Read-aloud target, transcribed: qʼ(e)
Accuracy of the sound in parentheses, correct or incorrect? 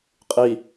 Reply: incorrect: i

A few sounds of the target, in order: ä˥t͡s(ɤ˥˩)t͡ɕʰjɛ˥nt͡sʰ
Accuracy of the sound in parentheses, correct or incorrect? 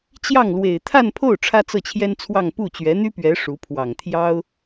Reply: correct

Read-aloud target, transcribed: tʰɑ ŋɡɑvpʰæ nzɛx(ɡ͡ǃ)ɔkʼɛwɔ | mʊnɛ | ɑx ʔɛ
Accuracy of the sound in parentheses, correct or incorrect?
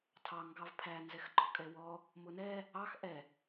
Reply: correct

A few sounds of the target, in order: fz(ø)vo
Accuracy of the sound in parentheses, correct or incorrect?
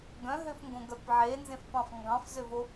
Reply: correct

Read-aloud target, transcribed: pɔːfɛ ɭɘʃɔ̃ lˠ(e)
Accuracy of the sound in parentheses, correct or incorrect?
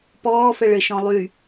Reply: incorrect: y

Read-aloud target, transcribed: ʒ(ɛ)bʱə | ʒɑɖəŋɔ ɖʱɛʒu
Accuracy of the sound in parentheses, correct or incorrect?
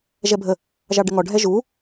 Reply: correct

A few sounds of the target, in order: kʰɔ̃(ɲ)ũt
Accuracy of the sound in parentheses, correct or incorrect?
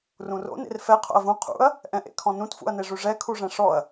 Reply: incorrect: n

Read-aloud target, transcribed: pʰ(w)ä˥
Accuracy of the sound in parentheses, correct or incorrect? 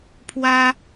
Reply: correct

